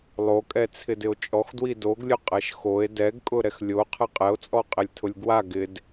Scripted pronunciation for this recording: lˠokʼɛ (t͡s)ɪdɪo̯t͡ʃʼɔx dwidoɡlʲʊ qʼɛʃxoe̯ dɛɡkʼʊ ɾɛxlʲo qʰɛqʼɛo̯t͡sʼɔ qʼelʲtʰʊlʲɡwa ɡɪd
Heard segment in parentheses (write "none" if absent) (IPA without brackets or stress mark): t͡sʰ